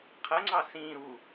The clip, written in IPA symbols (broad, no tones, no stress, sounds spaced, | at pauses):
qʰ ə ŋ͡ǀ ɑ s ĩ ɾ u